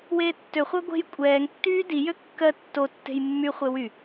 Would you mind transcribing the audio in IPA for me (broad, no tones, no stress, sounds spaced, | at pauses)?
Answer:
w eː tː ø χʷ ɜ ɡʷ e̤ j kʷʼ ɛː ŋ tː yː d i j ø kː ɜ tː o tː e̤ j mː y χʷ e w y